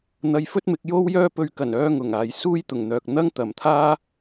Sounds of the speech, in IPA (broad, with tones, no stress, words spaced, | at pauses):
n̪ɐ˧jfɵ˥t̚mɪ˨˥k̚jo˥w jœː˥pɵ˧ɥ kɐ˨˩nœː˧ ŋʊ˨˩ŋaː˨j suː˥jt̪ʊ˨˩ŋn̪œː˨k̚ n̪ɐ˥ŋt̪ɐ˨˩mt̪ʰaː˥